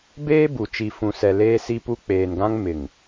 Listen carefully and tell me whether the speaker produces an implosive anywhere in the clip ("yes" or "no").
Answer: no